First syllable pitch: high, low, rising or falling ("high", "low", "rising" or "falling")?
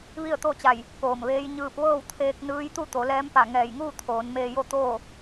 falling